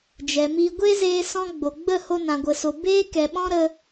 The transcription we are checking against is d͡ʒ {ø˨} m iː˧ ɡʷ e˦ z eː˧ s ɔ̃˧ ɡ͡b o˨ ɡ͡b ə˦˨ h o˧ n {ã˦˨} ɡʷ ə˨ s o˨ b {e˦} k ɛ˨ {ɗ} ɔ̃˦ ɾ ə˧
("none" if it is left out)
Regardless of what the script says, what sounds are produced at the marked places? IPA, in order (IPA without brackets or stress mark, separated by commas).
ɛ˨, ã˨, e˦, ɓ